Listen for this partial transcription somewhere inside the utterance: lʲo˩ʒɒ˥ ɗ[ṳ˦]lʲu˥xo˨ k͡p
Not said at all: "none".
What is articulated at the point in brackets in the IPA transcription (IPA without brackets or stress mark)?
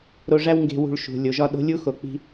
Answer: o̤˦